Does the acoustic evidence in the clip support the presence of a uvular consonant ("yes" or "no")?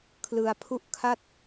no